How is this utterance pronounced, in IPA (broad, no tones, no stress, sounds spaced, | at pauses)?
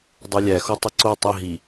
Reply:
dˤ u lʲ æ x o tˤ i ǀ o tˤ i ɦ i